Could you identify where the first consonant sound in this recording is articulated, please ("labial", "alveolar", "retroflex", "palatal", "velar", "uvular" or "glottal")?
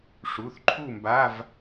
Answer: retroflex